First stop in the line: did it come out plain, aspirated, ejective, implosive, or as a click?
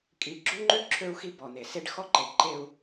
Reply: ejective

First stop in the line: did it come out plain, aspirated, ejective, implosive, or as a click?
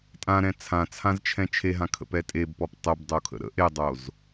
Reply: ejective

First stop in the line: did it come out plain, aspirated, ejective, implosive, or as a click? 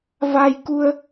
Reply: plain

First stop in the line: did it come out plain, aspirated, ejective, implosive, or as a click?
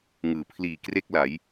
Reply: aspirated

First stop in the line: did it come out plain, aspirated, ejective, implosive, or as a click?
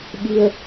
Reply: implosive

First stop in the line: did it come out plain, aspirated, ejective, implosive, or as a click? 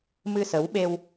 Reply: implosive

